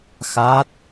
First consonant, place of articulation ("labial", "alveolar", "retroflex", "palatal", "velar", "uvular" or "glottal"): velar